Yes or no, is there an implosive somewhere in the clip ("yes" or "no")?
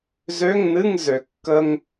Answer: no